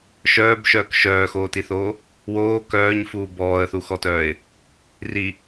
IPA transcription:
ʃ œː b ʃ œː k ʃ œː x oː t i θ oː | w oː k œː ɲ f uː b ɔː ə̯ θ u x ɔ t œː ɪ̯ | r i

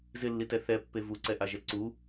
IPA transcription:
z ɪ lː i t ɛ θ ɛ pː e v u ǀ ɛ ʔ a ʒ ɛ ǀ u

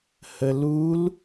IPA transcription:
h ə l u l

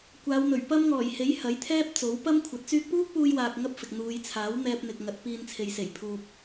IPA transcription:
kʷ aː˨˧ w n̪ ɵ˨˩ ɥ p ɐ˥ m ŋ ɔː˨˩ j h e˨˥ j h ɐ˨˥ j t̪ʰ ɛː˥ p̚ t͡s o˨˥ w p ɐ˥ m kʷʰ ɐ˨˥ t̚ t͡s yː˧ k̚ p uː˥ k̚ p uː˧ j w aː˨ k̚ ŋ ɐ˥ p̚ f ɪ˨ k̚ n̪ uː˨˧ j t͡sʰ aː˨˥ w n̪ ɛː˧ p̚ n̪ ɪ˨ k̚ ŋ ɐ˨˥ t̚ p iː˧ n t͡sʰ e˨ j s e˨˩ j pʰ uː˨ p̚

